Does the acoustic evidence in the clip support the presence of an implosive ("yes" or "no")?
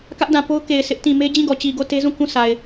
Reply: no